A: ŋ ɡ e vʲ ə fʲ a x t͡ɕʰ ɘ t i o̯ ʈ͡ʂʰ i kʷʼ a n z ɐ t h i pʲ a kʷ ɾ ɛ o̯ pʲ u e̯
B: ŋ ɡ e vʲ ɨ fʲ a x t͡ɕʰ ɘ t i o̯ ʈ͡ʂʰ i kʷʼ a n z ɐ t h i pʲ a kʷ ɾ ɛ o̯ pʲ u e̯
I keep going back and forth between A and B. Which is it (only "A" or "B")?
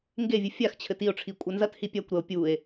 B